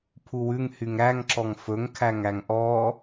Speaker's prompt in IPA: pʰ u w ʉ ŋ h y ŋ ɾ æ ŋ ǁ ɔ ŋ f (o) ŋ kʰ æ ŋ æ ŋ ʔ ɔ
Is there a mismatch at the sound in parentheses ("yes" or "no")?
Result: yes